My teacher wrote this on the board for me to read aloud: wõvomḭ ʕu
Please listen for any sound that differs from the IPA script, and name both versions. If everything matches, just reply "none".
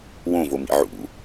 u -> ṵ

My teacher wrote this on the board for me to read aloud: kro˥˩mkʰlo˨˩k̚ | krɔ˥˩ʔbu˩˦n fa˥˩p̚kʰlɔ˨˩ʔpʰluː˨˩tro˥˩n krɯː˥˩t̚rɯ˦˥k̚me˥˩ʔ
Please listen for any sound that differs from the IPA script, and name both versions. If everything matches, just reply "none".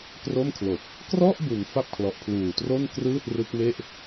none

